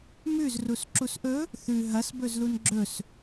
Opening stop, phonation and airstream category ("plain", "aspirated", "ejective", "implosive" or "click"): click